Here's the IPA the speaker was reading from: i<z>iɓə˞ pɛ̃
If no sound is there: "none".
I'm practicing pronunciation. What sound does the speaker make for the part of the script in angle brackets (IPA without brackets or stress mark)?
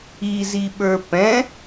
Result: z